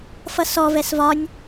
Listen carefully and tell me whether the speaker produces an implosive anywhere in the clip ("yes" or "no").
no